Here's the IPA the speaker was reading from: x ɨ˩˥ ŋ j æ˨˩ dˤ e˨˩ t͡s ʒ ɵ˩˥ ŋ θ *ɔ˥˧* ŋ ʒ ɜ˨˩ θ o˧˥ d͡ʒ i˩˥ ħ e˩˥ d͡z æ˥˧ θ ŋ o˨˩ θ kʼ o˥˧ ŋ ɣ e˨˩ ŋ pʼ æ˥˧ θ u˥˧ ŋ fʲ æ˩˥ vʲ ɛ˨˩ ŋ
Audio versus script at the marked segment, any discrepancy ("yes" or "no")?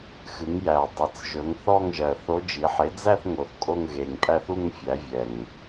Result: no